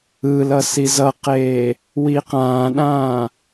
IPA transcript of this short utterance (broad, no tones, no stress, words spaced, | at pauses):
ɯlʌ sizʌqeː | wiqãːɗãː